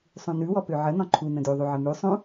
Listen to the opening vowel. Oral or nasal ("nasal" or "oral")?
nasal